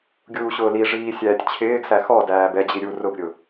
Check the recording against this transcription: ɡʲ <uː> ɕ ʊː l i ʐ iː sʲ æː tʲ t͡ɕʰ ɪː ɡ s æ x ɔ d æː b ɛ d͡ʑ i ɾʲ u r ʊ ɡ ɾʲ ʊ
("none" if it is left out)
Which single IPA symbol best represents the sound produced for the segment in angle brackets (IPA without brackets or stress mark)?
uː